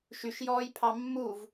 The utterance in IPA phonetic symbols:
ʃ y ʃ j ɔː j pʰ ɑ mː u v

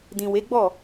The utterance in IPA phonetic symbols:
d ĩ˨ w e˨˦ ɡ͡b ɔ˦˨

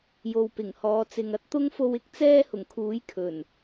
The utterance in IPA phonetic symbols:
j o˨ w p ɪ˨˩ ŋ h ɔː˨˧ t͡s ɪ˨ ŋ ɐ˥ t̚ t̪ ʊ˥ ŋ f o˧ w ɪ˥ k̚ t͡s ɛː˥ h ʊ˨˩ ŋ kʰ uː˨˥ j kʰ ɵ˨˩ n

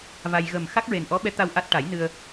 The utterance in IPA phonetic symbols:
v a˧ j ɣ ə˨˩ m x a˦˥ k̚ ɹ e˨˩ n ʔ ɔ˧˥ ɓ ɛ˧˥ t̪ a˧ w ʔ a˦˥ t̚ ʈ a˨˩˦ j n ɨ˧ ə̯

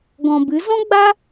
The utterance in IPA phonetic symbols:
ɡ ɔ̃˨ b ɨ˨˦ z ɔ̃˦ ɡ͡b a˦

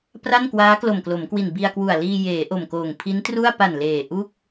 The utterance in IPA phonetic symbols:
p r a˥˩ n k w aː˦˥ k l o˨˩ m k l o˩˦ m k w i˨˩ n b i˧ a̯ k w u˨˩ a̯ l iː˧ j eː˩˦ ʔ o˨˩ m k oː˨˩ ŋ pʰ i˦˥ n t r u˥˩ a̯ p a˨˩ n l eː˨˩ ʔ u˥˩ k̚

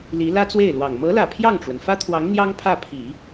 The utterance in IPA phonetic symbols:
l i˧˥ l ä˥ t͡s w e˥˩ ɪ̯ l w ɑ˨˩ ŋ m ɤ˧˥ l ä˨˩ pʰ j ɑ˥˩ ŋ ʈ͡ʂ w ə˩ n f ä˥ t̪ʰ w ɑ˧˥ ŋ n̪ j ɑ˥ ŋ pʰ ä˥˩ pʰ i˨˩˦

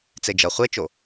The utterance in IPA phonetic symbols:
t͡s e d͡ʒ ʌ χʷ e t͡ʃ o

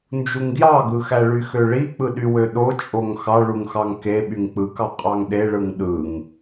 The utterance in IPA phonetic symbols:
n d͡ʒ u ŋ ɡ j ɑ ɡ ɯ x æ ɭ y x ø ɭ i k͡p ɯ ɗ y w ø ɗ o t͡ʃʼ o ŋ x ɑ ɭ u ŋ x ɑ ŋ k e ɓ y ŋ k͡p ɯ k ɑ qʼ ɑ ŋ ɗ e ɭ ɯ ŋ ɗ ɯ ŋ

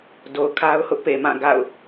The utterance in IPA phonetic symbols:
d o˨ ʊ̯ kʰ a˦ ʊ̯ h ʊ˦ ʔ p e˨ m ã˦˨ ɡ a̰˦˨ ʊ̯

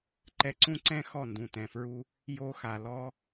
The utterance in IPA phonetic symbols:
ǃ ɛ˧ ǀ ũ˦ ǀ ɛ̃˦ x ɔ˦˨ n d ũ˨ t ɛ̃˨ f ɹ u˦ | j o˧ x a˨ l ɔ˦

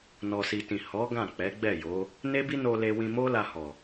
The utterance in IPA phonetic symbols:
n ɔ˨ s i˨ t ĩ˨ h ɔ˨˦ ɡ ã˦˨ k͡p ɛ˨˦ ɡ͡b ɛ˦˨ j o˨˦ | n e˦ b i˦ n o˧ l e˧ w ĩ˧ m o˦ l a˧ h ɔ˨

